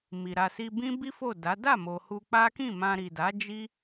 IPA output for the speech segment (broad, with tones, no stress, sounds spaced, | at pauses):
m i˨ ɾ a˨ s i˧ b ĩ˦ b i˦ f o˦˨ d a˨˦ d a˦˨ m o˨ h u˧ k͡p a˦ k ĩ˦˨ m ã˧ ɾ i˨ d a˨˦ d͡ʒ i˦